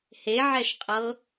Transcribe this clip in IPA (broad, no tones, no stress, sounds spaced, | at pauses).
h e ʕ ɛ ʃ qʼ ɤ